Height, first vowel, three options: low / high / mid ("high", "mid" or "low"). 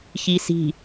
high